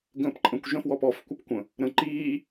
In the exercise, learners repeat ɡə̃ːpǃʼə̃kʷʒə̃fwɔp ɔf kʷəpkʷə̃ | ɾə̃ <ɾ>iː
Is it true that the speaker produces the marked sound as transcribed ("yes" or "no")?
no